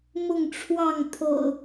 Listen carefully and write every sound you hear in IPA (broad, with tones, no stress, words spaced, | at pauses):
mʊ˥˨ŋʈ͡ʂʰwɑ˥˨ŋ t̪ʰo̰˨˩ʊ̯